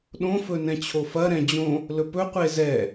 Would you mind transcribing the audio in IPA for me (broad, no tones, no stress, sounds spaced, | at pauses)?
ɗ õ f ɵ n ɛ̃ t͡ɕʰ o f ɐ ɾ ɛ̃ d͡ʑ õ | l ɵ p ɵ qʷ e z ɛ